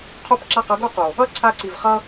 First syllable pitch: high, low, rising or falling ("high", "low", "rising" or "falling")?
high